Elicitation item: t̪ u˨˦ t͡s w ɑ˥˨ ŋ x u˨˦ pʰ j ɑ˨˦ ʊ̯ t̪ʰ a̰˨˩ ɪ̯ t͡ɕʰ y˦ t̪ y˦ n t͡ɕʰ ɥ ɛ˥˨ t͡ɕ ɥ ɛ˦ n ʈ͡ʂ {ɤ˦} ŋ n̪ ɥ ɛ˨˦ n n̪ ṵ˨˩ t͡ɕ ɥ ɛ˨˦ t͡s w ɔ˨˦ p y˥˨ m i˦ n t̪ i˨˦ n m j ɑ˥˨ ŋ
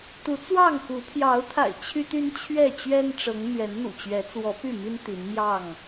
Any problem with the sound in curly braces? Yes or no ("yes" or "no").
yes